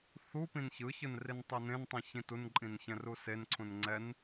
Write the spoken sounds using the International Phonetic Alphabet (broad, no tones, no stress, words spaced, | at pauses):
θu pĩnçɯçɯn rintˤɛnẽntˤĩ çĩtunǃʼĩn çɛ̃rusenǀʰũn ŋ͡ǀɛn